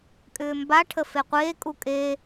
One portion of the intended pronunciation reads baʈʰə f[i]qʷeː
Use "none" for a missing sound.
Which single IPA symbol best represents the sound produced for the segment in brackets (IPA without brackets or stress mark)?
e